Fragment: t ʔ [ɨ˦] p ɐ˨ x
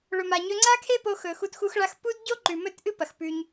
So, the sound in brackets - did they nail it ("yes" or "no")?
yes